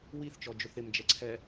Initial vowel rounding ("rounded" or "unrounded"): unrounded